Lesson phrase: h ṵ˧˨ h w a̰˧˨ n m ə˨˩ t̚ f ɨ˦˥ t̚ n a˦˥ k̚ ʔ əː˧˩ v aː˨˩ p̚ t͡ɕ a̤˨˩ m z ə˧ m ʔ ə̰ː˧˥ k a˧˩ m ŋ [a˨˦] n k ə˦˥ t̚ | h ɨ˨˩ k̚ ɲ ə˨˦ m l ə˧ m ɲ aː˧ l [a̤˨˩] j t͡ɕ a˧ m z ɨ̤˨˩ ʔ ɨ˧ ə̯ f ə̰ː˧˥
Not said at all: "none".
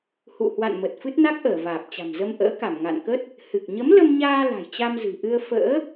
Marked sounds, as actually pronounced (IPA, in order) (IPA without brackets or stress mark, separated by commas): a̰˧˨, a̤˨˩